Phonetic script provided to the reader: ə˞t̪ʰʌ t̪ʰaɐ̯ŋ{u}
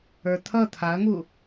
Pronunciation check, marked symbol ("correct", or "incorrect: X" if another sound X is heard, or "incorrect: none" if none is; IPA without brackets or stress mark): correct